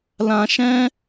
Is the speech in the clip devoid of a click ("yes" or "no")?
yes